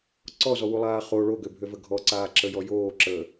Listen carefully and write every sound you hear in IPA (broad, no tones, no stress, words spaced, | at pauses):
ǀɔzɔwulˠaː χo ɭoɡøbʱøvə ɡʱɔǀaːǁəjɔ joːǁəː